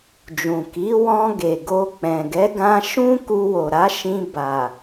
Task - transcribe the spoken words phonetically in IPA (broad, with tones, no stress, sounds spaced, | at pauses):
d͡ʒ ũ˨ k i˨˦ w ɔ̃˧ ɡ e˨ ɡ o˧ k͡p ɛ̃˨ ɡ ɛ˨˦ ɡ ã˧ ʃ ũ˦ k u˧ w o˨ ɾ a˨˦ ʃ ĩ˧ b a˨